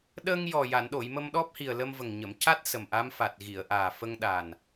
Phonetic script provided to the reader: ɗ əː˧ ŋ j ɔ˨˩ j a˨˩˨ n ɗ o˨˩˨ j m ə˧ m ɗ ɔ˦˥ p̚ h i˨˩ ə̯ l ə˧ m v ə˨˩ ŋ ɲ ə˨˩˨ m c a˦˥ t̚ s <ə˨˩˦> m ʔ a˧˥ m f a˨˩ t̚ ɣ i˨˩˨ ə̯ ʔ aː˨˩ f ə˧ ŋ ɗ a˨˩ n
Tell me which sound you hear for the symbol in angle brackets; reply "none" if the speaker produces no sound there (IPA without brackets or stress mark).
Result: ə˨˩